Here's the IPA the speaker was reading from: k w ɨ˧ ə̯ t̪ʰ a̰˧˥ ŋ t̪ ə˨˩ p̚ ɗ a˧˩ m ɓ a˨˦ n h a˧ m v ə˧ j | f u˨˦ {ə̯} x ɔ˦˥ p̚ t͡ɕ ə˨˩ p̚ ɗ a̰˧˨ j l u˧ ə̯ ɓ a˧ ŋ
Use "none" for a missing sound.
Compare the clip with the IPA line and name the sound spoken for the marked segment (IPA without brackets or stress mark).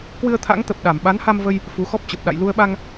none